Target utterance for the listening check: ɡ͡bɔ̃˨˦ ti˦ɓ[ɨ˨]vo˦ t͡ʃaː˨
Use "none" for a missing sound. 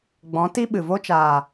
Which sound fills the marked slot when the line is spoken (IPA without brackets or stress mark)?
ɨ˨